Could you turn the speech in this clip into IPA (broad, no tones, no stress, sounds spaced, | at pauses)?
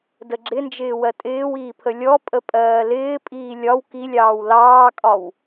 d ə ɡ͡ǁ ɪ n d͡ʒ ɪː w ɜ tʼ ɪː w iː pʰ ə lʲ ɔ pʼ ə pʼ ɜː l ɪː pʼ iː lʲ ɒ w k i lʲ ɑː w l ɑː kʼ ɒ w